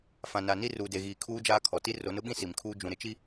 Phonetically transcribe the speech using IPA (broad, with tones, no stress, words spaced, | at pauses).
fã˨na˨ni˦ ruː˨de˨ɣiː˨ kʰuː˦d͡ʒaː˦kʰɔ˨ ti˦ro˨˦nʊ˦ɓĩ˦ si˨mkʰuː˦ d͡ʒũ˨ɾɪ˨˦t͡ʃi˦